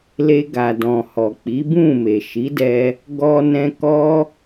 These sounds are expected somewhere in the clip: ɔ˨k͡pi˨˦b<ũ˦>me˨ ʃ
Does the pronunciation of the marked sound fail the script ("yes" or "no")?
yes